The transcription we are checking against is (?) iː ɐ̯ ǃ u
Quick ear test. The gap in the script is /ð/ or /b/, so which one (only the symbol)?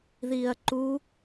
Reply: ð